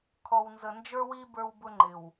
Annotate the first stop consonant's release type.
aspirated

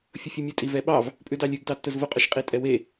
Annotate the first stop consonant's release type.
ejective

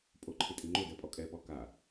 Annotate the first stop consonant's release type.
ejective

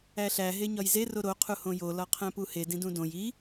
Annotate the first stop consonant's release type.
aspirated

